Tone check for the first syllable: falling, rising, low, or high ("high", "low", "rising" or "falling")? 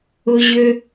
high